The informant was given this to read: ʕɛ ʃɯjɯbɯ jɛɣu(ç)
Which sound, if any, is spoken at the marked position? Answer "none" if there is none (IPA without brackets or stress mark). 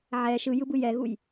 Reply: j